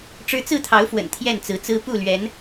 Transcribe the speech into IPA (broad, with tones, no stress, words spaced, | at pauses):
ʈ͡ʂɻ̩˦ t͡sɹ̩˥˨t̪ʰɑ˨˦ʊ̯fwə̰˨˩n t̪ʰjɛ˥˨nt͡sɹ̩˨˦t͡sɹ̩˦ pu˥˨ lɥɛ˨˦n